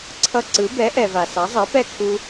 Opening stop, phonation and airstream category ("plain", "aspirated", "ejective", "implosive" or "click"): click